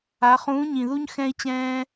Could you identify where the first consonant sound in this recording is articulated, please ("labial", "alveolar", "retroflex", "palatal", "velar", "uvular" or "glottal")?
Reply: uvular